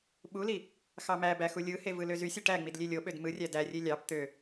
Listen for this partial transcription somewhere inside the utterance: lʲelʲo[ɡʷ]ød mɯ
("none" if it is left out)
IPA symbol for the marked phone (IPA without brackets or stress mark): ɓ